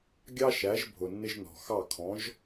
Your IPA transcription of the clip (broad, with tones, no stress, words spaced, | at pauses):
ɡʲɑ˥ʃæ˩˥ʒ bʱʊ˩nːɪ˥ʒnɔ̤˩ xɑ˥˩ kʰɔ̃˩˥ʒ